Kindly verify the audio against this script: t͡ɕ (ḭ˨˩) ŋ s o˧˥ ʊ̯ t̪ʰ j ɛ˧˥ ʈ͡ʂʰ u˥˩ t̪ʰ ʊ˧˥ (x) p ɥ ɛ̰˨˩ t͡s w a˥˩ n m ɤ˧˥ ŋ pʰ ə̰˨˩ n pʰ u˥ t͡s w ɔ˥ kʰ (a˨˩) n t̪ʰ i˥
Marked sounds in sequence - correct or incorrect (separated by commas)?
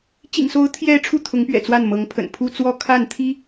correct, incorrect, incorrect